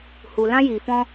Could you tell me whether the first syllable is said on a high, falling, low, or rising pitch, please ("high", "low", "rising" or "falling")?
low